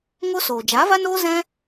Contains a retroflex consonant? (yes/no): no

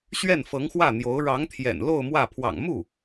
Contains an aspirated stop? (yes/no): yes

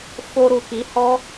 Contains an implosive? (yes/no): no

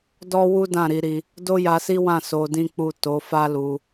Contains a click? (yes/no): no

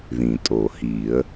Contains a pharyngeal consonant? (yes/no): no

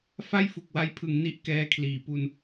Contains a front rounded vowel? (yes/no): no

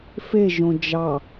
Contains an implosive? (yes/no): no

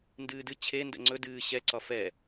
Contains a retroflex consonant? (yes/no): no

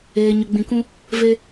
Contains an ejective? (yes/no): no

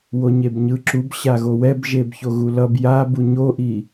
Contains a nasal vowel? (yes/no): no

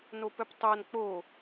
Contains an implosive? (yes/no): no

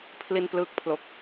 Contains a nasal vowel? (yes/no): no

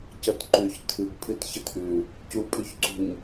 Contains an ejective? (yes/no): yes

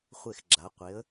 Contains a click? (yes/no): yes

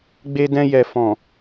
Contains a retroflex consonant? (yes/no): no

